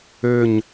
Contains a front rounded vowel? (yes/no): yes